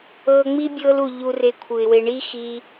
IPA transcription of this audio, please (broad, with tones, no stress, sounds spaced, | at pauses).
ɤː˧ ŋ͡m i˦ bʲ ɤː˧ l u˨ ʎ u˧ r e˧ kʷʰ ɯ˨ ɪ̯ w e˧ ɳ i˦ x i˧